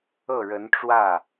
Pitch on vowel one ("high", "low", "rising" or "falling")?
falling